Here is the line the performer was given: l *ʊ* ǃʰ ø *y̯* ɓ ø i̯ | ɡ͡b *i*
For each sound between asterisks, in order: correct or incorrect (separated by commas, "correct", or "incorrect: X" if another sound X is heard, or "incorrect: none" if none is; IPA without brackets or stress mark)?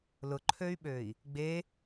correct, correct, incorrect: e